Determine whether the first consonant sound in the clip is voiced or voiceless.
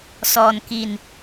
voiceless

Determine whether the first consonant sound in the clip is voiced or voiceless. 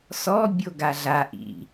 voiceless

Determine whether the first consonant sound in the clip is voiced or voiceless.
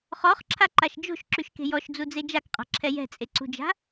voiceless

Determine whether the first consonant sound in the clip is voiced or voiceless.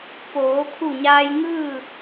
voiceless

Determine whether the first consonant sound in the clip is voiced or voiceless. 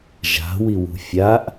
voiced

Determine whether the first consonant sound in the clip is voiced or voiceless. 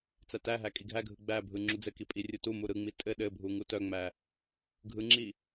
voiceless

